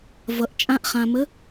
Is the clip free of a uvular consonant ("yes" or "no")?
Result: no